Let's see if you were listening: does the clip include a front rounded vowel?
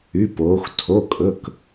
yes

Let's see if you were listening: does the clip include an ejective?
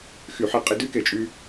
yes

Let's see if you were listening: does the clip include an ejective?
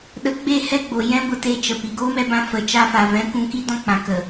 no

